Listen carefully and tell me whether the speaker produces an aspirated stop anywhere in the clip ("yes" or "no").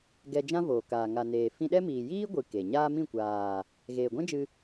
no